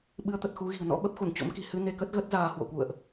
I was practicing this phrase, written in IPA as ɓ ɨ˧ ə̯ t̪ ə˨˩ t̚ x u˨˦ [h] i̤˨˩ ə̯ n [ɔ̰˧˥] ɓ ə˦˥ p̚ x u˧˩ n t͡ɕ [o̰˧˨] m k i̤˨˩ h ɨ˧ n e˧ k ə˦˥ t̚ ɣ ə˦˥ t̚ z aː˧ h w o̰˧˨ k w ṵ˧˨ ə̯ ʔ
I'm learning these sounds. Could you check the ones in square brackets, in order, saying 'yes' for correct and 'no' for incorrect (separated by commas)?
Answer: no, yes, no